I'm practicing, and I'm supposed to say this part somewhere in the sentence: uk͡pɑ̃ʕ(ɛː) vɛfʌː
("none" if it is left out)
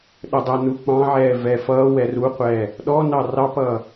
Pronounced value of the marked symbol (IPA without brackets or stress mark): ɛː